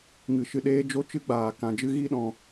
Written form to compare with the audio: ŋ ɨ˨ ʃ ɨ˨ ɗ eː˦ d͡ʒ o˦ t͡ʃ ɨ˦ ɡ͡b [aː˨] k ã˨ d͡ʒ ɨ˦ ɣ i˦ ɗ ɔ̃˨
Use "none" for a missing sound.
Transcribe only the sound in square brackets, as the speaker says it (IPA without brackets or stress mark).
aː˨